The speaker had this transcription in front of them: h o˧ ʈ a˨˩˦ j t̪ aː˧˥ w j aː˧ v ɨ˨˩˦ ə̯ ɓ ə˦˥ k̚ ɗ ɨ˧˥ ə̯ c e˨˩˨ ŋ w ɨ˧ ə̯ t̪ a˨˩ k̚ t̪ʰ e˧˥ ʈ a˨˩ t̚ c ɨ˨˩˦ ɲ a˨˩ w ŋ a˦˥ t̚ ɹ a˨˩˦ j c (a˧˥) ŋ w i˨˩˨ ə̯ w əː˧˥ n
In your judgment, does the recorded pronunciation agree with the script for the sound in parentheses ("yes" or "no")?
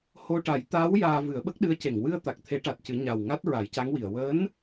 yes